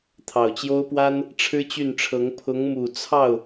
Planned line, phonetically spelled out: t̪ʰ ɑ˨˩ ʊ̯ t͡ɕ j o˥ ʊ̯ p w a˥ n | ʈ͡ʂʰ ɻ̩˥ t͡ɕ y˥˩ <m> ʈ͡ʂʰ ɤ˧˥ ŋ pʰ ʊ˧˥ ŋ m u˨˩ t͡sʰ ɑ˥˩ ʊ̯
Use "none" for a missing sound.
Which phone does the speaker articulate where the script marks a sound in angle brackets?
n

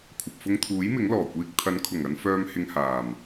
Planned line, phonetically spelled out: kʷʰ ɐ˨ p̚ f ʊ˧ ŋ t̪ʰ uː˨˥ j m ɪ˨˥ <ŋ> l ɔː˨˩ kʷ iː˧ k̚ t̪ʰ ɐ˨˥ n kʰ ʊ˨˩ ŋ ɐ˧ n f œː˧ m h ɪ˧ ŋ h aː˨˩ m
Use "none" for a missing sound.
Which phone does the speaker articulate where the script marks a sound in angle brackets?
ŋ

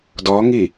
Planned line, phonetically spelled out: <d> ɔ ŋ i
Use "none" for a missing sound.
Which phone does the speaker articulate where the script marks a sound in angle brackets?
d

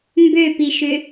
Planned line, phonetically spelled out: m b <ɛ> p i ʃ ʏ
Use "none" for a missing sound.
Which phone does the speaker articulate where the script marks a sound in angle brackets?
ø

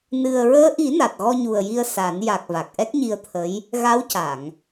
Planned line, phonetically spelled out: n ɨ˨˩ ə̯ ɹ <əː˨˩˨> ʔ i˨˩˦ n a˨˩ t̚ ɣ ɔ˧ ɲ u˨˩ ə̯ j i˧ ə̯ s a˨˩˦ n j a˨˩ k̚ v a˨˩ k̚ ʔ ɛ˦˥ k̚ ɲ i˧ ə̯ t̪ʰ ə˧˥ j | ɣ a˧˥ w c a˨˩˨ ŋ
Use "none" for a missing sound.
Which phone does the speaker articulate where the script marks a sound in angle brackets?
əː˧˥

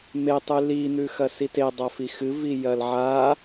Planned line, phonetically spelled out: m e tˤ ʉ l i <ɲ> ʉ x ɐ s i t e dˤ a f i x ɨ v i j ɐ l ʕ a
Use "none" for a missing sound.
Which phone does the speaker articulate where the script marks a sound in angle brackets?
n̪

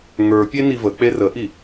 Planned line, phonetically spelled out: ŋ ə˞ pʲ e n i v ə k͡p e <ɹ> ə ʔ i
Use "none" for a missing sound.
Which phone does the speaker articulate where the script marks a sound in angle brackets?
r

